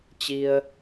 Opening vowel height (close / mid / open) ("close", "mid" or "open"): close